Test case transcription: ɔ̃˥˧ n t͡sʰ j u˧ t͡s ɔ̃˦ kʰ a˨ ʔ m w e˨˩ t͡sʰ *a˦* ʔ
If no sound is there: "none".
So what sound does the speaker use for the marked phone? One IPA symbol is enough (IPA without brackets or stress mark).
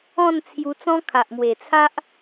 a˦